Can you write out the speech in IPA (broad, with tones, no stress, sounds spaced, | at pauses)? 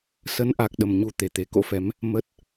s ə˨˦ n ʔ a˨˩ k̚ ɗ ə˨˩ m ɲ u˧ t̪ e˨˩ t̪ e˨˩ k o̰˧˥ f ɛ˨˦ m | m ə˦˥ t̚